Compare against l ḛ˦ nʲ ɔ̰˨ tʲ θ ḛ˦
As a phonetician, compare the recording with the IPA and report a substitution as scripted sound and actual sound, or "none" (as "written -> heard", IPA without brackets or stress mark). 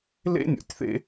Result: none